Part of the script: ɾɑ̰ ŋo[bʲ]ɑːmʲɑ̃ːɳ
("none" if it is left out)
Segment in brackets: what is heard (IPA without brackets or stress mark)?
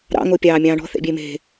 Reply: pʲ